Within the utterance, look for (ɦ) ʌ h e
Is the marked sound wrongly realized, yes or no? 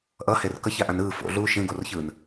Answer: yes